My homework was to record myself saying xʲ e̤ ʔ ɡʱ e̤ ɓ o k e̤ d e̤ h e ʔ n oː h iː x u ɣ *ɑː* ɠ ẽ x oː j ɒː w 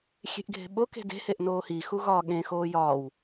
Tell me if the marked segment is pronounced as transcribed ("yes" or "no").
no